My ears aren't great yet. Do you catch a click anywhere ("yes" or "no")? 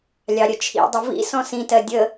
no